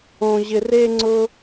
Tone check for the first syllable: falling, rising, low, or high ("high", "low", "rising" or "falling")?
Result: high